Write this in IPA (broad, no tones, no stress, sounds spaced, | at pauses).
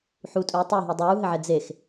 ħ u tʼ uː tˤ u ɦ i dˤ uː ɦ ɘ ʕ ɛ d͡z e x